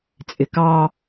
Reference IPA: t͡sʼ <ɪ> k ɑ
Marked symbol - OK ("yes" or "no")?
yes